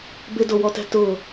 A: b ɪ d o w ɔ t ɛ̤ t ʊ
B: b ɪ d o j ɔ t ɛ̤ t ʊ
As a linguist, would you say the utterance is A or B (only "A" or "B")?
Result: A